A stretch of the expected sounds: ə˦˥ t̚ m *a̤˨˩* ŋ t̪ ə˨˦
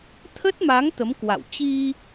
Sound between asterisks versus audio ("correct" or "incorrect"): incorrect